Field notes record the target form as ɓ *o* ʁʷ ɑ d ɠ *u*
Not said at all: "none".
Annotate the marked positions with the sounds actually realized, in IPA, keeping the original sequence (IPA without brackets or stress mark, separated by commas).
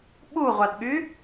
u, y